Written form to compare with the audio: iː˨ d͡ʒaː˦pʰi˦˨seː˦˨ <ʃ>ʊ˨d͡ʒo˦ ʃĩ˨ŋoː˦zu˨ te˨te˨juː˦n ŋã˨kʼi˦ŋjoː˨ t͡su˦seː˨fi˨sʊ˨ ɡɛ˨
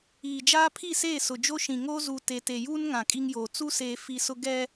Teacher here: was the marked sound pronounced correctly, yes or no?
no